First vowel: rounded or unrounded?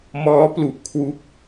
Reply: rounded